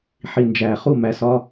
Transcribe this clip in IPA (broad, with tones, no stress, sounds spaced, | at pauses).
ħ i˧ n d͡ʒ æː˨ χ u˦˨ m æ˧ s ɒː˦